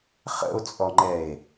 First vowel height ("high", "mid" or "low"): mid